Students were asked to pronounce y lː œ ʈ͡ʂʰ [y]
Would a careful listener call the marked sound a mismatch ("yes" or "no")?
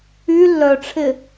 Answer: yes